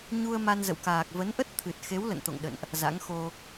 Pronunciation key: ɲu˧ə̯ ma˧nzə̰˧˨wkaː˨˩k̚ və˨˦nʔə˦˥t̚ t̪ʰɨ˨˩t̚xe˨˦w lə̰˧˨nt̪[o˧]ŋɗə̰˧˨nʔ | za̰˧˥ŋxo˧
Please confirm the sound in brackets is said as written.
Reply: no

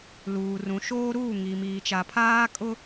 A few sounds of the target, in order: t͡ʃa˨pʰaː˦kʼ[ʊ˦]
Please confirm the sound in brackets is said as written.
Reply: yes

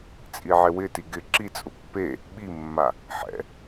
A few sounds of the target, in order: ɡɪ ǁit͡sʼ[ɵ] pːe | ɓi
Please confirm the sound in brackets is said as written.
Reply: no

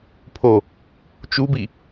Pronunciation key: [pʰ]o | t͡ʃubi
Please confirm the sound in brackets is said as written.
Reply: yes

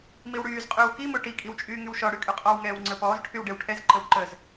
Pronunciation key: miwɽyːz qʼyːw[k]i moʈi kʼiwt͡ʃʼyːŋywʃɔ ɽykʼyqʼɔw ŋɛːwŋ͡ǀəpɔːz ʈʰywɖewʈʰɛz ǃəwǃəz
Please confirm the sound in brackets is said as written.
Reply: yes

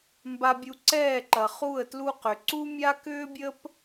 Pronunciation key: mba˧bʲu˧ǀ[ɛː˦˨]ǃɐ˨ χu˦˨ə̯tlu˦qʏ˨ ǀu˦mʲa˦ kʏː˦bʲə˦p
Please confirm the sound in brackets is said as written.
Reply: yes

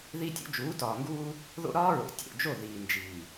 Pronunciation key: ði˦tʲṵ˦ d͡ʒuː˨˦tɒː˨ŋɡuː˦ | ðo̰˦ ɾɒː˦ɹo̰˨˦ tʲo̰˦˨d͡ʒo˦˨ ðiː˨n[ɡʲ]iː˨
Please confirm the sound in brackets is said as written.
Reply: no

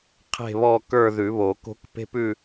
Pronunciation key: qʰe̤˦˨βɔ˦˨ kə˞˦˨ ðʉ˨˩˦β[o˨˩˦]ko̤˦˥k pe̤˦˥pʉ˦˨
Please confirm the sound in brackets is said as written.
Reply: yes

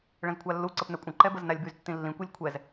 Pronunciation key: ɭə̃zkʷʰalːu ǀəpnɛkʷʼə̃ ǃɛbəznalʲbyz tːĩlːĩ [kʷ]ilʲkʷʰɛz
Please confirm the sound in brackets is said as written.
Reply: yes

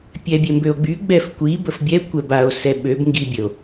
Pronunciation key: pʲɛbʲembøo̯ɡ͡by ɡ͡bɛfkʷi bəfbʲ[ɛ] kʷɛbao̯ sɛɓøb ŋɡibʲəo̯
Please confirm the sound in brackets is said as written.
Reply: yes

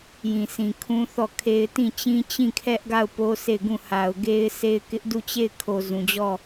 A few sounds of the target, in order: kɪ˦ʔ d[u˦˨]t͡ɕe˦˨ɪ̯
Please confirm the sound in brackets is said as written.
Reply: yes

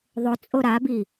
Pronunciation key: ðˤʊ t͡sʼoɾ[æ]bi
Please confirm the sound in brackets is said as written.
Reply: no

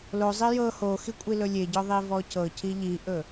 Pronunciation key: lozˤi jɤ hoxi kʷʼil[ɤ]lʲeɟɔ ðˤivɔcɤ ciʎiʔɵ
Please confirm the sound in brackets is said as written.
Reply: no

